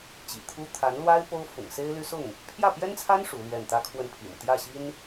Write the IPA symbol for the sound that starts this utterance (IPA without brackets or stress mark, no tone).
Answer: t͡ɕ